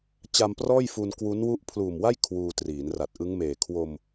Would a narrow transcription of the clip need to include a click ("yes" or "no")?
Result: no